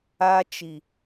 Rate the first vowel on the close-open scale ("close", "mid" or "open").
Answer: open